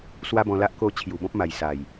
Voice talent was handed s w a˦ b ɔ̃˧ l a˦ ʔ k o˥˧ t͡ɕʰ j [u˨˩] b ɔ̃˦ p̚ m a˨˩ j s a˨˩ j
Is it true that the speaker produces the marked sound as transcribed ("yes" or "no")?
yes